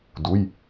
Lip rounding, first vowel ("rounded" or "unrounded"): rounded